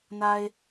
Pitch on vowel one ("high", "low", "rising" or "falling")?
low